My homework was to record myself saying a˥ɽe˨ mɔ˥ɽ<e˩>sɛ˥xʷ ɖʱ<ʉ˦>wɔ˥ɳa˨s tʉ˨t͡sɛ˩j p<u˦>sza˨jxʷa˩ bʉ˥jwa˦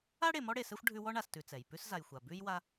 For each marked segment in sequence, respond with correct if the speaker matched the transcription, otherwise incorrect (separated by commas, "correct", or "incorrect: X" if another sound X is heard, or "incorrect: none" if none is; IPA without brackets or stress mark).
incorrect: e˨, correct, incorrect: ʉ˦